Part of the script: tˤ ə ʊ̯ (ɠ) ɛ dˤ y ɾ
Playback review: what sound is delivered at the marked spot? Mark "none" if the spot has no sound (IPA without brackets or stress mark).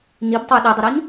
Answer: ɗ